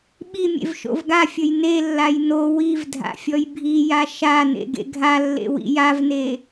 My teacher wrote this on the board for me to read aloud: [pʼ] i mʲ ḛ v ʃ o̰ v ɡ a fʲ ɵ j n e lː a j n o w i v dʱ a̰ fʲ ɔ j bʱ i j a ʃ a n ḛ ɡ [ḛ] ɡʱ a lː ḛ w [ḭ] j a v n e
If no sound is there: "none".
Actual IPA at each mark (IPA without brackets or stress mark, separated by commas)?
ɓ, ḛ, ḭ